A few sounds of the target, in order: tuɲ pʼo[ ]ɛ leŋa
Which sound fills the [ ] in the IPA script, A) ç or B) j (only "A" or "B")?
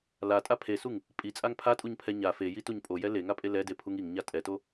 B